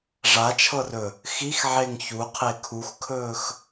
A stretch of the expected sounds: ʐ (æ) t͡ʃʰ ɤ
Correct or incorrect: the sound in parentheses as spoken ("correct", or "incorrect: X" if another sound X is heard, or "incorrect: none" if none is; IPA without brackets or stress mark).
incorrect: a